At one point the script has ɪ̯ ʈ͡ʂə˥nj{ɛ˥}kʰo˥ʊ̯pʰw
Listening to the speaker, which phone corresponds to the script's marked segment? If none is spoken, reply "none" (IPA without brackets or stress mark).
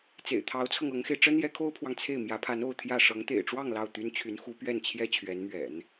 ɛ˧˥